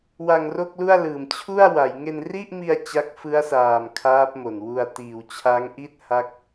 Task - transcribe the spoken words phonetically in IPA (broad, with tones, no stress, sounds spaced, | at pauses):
w a˧ ŋ r o˥˩ k̚ l u˥˩ a̯ l ɯː˨˩ m t͡ɕʰ u˥˩ a̯ w a˩˦ j ŋ e˧ n r i˥˩ ʔ m i˧ a̯ t͡ɕ a˦˥ k̚ f ɯ˦˥ a̯ s aː˨˩ m kʰ aː˦˥ p̚ m o˨˩ n w u˧ a̯ t iː˨˩ w t͡ɕʰ a˦˥ ŋ ʔ i˥˩ t̚ h a˥˩ k̚